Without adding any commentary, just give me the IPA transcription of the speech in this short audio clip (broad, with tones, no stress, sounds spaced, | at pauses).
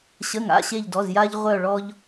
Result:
ɕ ə˩˧˩ ŋ a̰˩˧˩ ɕ e˧˩ ʎ d ɔ˩˧˩ z j aː˧ ʎ ʁʷ œ˧˩ ɭ ɔ˧ ʎ